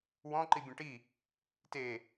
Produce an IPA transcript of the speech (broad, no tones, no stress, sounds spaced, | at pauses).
w ɔ̃ ǃ i bʲ ɛ̃ ʈ i | t e